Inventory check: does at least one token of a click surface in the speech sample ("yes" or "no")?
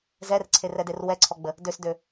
yes